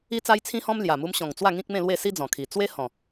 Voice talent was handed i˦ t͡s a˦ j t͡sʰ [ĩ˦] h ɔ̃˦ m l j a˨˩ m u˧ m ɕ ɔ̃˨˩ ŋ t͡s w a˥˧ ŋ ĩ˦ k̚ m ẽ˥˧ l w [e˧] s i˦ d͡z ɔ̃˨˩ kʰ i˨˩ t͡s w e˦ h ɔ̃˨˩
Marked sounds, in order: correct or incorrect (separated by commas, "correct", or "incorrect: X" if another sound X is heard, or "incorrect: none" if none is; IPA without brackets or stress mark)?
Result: correct, incorrect: e˥˧